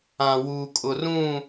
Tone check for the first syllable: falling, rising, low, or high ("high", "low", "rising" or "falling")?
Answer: low